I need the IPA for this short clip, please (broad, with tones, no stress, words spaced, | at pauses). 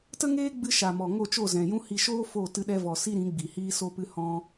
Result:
tə˦ŋeː˦ ɡ͡bɨ˦ ʃa˨mɔ˨ ŋo˦˨t͡ʃo˦˨zɛ̃˨jũ˦ hi˧ʃoː˦ fo˦˨ tɨ˧ɗɛ˧vɔ˨ si˦ɾĩ˨˦ ɡ͡bi˨hiː˦so˦pɨ˦ hɔ̃˦